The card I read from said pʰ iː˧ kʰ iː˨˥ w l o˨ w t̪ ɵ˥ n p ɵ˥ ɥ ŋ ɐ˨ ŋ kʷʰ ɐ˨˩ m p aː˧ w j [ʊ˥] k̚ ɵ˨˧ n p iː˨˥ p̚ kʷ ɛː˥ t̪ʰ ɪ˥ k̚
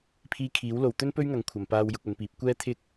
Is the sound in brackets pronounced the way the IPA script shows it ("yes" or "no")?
no